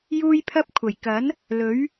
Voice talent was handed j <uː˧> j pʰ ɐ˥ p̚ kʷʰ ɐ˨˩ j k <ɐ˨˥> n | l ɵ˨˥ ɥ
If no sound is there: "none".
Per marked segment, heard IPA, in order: uː˥, ɐ˨˥

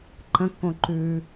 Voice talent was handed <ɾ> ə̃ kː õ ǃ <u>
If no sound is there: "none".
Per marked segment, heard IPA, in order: ǃ, ʉ

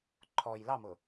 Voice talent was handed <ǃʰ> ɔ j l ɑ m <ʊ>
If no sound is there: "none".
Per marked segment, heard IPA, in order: ǃʰ, ʊ

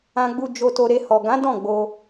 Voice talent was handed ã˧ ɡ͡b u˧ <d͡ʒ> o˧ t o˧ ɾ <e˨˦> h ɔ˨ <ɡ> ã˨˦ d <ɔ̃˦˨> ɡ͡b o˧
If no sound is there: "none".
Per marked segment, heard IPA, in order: d͡ʒ, e˧, ɡ, ɔ̃˦˨

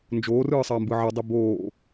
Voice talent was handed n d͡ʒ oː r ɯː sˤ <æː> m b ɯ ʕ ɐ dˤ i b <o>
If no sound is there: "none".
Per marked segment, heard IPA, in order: ɐː, oː

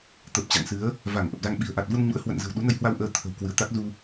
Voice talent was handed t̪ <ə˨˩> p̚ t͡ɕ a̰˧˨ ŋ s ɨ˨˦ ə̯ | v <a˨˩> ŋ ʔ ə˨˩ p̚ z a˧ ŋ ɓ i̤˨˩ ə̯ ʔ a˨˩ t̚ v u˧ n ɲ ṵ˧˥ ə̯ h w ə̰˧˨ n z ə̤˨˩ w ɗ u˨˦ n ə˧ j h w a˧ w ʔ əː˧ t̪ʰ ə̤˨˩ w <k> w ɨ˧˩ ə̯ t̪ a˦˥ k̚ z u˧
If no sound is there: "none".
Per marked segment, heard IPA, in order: ə˨˩, a˧˩, k

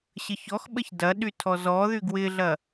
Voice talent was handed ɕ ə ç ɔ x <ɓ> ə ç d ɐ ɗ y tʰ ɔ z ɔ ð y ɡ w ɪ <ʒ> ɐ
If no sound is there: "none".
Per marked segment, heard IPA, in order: ɓ, ɮ

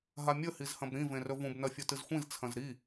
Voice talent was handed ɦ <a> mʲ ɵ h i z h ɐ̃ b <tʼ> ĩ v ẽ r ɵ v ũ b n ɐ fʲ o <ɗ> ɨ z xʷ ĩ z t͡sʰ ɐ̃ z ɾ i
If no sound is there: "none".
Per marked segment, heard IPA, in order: a, ɾ, t

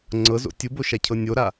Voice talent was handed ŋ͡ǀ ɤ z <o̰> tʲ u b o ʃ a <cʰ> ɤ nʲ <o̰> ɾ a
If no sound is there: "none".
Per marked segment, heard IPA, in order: o̰, cʰ, o

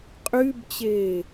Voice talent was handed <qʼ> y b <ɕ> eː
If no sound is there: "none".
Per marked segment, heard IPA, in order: qʼ, t͡ɕ

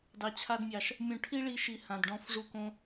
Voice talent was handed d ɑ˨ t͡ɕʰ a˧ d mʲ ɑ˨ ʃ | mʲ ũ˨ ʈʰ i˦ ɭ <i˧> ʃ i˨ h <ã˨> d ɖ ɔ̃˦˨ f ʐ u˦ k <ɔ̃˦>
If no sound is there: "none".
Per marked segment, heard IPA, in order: i˧, ã˨, õ˦

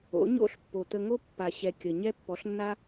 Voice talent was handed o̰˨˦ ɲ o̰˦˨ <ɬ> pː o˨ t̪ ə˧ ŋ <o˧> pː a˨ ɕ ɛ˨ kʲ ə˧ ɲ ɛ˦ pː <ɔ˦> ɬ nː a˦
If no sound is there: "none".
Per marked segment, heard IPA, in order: ɬ, o˦, ɔ˨˦

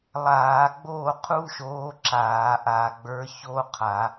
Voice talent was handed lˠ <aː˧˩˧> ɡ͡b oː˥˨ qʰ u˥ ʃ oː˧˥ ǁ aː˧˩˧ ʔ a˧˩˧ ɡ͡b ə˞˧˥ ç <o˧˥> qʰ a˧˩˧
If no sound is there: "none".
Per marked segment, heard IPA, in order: aː˧˩˧, o˥

